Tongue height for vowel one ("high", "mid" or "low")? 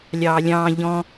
low